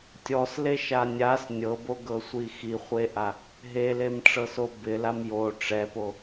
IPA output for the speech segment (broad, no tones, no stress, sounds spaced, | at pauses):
tʲ ɔ s l e ʃ a nʲ a s nʲ ɤ b o ɡ ɤ sʷ i x i χʷ e ʔ a | ɦ e l e m ʈ͡ʂ ɤ s o b ɪ l a m j o ʈ͡ʂ ɛ p o